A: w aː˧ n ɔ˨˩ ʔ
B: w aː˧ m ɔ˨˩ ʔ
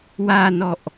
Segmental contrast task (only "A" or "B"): A